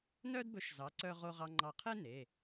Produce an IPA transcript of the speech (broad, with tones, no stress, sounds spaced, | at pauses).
n œ˥ d b ɵ˨˥ ʃ z ɑ˩˧ ǀ œ˧ ʁ o˧ ʁ ɑ˧ ŋ͡ǃ ɑ˧˩ qʰ e˥ n e˩˧˩